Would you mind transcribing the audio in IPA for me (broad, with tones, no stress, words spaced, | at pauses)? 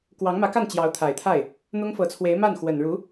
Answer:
kwɑ˧˥ŋmä˧˥ka˥˩n t͡ɕjɑ˧˥ʊ̯t̪ʰa˨˩ɪ̯t̪ʰa˥˩ɪ̯ | n̪ʊ˥ŋfɤ˧˥t͡sʰwe˧˥ɪ̯ ma˥˩n xwə˨˩nɻu˧˥